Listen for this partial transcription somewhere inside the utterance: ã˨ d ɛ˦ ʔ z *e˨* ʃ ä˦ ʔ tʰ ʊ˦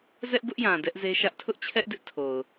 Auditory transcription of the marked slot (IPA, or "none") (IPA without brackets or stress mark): e˦